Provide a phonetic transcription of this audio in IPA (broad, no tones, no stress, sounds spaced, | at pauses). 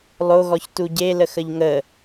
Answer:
lˠ o ɣ ɔ ç t u ɟ e l ə x ə ʎ ŋ ə